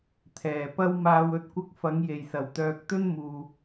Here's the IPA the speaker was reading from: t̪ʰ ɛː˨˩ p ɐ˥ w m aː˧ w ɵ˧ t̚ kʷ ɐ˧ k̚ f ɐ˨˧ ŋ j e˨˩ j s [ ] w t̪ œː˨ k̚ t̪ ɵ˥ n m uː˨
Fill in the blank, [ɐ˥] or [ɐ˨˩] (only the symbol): ɐ˨˩